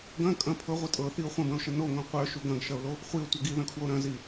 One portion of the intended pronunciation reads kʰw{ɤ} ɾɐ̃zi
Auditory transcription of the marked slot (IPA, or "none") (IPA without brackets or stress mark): o